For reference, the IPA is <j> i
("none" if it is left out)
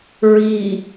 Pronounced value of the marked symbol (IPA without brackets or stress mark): ɹ